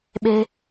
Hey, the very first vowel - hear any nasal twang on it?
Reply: no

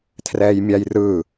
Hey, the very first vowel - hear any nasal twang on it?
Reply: no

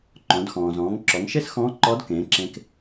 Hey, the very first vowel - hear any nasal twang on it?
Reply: yes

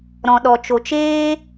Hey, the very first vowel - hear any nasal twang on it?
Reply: yes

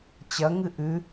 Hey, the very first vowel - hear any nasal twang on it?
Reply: no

